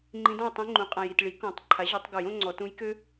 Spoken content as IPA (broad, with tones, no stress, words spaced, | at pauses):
ŋ͡ǃĩ˧˥dɔ̃˥˨jtˤĩ˧˥ ŋ͡ǃũ˩˥qʼã˨j i˨tɭi˩˥ kɔ̃˨˩˦tˤ ǃʰa˩˥ʑø˨˩˦tˤɡo˨˩˦j õ˥ŋ͡ǀɔ˨˩˦ tũ˧˥jkø˥